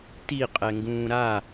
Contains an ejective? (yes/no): yes